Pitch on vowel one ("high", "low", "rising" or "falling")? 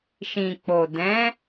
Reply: low